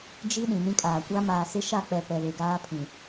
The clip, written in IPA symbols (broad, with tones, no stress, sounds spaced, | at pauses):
d͡ʒ i˦ ɗ ĩ˨ n ĩ˦ kʼ aː˨ kʷ a˦ m aː˨ s ɪ˦ ʃ a˦˨ k͡p ɛ˨ p ɛ˨ β e˨ ɡ aː˦ pʰ ĩ˨